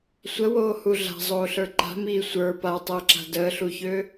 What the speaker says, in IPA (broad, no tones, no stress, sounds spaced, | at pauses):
sʷ ə w oː h u ɮ a̤ zˤ oː ɬ ə˞ ǃ a̤ m iː sʷ ə˞ p a tˤ əː ǁ a̤ d əː ɬ u ç øː